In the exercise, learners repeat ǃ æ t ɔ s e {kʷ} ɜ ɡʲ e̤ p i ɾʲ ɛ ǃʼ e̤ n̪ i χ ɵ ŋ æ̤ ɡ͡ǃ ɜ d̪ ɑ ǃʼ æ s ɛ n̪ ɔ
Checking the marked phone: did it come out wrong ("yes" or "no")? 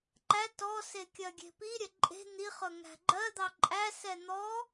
yes